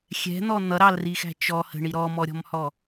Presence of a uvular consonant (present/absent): absent